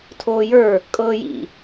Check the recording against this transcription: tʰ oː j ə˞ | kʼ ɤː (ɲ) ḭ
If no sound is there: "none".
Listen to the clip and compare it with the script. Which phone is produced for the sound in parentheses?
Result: j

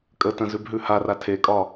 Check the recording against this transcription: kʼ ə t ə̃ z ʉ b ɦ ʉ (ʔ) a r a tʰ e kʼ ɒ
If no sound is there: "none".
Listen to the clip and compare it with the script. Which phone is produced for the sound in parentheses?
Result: h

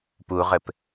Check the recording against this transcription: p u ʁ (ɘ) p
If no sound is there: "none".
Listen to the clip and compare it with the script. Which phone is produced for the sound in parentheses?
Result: ɘ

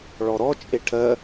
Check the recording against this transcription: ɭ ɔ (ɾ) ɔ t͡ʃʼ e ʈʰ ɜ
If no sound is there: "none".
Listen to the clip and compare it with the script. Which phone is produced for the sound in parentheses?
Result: ɾ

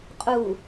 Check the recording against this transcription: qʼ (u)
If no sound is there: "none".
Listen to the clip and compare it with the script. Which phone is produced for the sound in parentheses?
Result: u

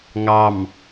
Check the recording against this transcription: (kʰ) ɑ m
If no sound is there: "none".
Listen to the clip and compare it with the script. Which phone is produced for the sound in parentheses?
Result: ŋ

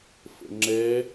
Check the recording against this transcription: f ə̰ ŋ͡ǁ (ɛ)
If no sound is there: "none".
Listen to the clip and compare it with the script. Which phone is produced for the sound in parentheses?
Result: ɛ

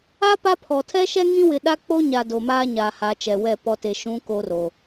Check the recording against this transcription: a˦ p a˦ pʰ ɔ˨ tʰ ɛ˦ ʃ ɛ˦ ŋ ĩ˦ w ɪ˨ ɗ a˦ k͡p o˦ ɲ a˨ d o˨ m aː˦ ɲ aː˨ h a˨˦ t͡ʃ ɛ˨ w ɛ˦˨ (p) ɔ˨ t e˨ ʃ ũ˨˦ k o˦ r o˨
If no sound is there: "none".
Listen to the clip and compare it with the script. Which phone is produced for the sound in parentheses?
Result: p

